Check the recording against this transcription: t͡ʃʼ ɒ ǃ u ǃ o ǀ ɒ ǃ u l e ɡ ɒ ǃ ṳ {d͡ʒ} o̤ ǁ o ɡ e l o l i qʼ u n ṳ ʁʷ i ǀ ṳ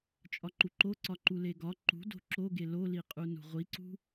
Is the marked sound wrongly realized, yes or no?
yes